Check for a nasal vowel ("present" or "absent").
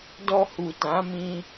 present